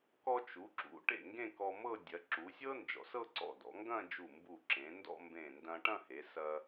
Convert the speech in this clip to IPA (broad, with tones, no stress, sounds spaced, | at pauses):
k ɔ˧ t͡ʃ u˩˧ ǁ ṵ˩˧ ʈ ḛ˧˩ ŋ ɡ ẽ˥˧ k ɔ˧ m ɤ˥˧ dʲ ɐ˩˧ ǁ u˩˧ sʲ ɤ˥ n d͡ʒ ɔ̰˩˧ s ɤ˥˧ ǀ ɔ̰˧˩ d ɔ̰˩˧ ŋ ɡ ɐ̃˥˧ d͡ʒ u˧˩ m b u˧˩ ǁ ẽ˩˧ n d ɔ̰˥˧ m b ẽ˧˩ n d ɐ̃˧ ʈ ɐ̃˥˧ h e˩˧ s ɐ˧